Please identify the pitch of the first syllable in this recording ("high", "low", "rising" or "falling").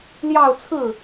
falling